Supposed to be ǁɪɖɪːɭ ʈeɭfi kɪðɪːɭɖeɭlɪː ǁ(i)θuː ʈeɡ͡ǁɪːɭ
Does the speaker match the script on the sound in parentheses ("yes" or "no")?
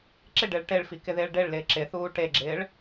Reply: no